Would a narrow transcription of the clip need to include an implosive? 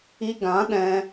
yes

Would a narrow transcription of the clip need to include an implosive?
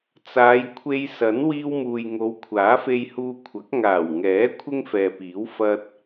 no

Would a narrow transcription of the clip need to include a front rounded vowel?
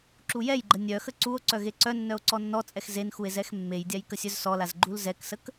yes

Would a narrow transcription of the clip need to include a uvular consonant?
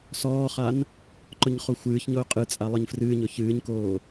yes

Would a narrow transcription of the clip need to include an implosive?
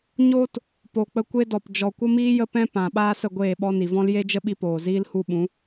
yes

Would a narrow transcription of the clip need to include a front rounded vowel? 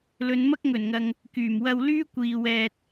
yes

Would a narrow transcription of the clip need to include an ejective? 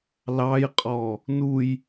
yes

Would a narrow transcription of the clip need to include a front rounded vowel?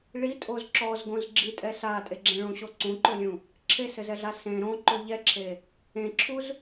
no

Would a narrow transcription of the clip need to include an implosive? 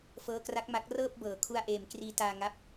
no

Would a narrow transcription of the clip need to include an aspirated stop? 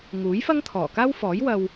yes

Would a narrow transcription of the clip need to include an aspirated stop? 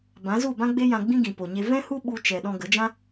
no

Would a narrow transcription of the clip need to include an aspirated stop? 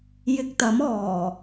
no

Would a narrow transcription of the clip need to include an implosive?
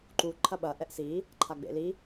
yes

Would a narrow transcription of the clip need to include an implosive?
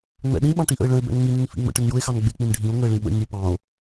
yes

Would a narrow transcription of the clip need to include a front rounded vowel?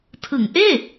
no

